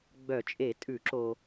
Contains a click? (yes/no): yes